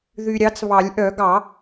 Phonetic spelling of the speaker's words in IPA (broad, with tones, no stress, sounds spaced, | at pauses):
ð y˨ ɾʲ ɑ˨˦ t͡s β ɑ˨˩˦ lʲ ʔ œ˨˩˦ ɡ ɑ˨˩˦